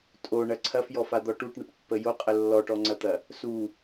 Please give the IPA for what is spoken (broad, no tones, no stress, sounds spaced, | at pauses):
tʼ o ɳ ɐ ǀʰ ɐ f j ɔ f a d̪ ɔ ʈ u ʈ ɳ ɐ ʈ pː ə j o qʼ ə lː ɔ ʈ ɔ ŋ͡ǀ ɐ t̪ ɐ | s u